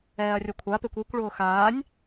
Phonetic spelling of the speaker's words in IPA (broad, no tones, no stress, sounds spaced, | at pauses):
ɛː ɐ̯ rʲ o kʷʰ a p e kʷ i kʷ ɭ ʊː x aː nʲ